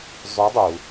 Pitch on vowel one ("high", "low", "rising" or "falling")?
rising